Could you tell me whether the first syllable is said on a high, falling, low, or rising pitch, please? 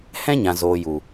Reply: high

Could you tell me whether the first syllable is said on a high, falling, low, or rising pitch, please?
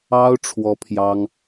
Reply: high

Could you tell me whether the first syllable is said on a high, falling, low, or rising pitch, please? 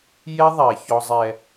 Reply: high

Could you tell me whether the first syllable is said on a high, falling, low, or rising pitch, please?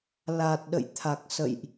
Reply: low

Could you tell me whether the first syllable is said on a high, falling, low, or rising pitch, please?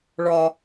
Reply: low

